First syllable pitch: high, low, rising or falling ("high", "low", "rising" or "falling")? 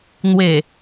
low